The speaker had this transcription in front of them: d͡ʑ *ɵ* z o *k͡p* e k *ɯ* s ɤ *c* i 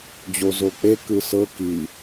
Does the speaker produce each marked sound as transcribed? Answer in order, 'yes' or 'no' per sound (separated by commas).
no, yes, yes, no